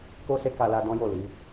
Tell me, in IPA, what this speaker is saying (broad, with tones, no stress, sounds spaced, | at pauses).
k o˦ s e˦ k a˧ l a˧ d ɔ̃˦ j o˦˨ l i˨˦